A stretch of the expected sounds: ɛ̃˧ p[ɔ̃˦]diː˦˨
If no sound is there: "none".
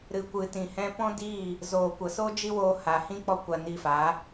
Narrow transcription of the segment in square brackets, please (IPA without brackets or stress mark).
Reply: ɔ̃˦